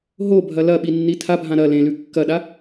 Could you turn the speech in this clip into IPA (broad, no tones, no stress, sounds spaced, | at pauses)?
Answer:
ɦ o bʱ ɐ l ɐ ɓ i nː i tʰ a bʱ ã ɾ ɐ l ẽ l ʉ kː ɐ ɗ a